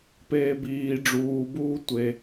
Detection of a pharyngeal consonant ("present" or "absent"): absent